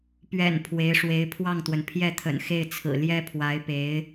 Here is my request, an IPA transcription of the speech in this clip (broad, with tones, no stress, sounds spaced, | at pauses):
p ɥ ɛ̰˨˩ n pʰ w e˧˥ ɪ̯ ʂ w e˧˥ ɪ̯ pʰ w ɑ˥˩ ŋ t̪ w ə˩ n pʰ j ɛ˥˩ t̪ʰ ə̰˨˩ n x e˥˩ ɪ̯ t͡sʰ ɹ̩˨˩ l j ɛ˥ pʰ w a˧˥ ɪ̯ p e˧˥ ɪ̯